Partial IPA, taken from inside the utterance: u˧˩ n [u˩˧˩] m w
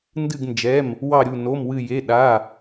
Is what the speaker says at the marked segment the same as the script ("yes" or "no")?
no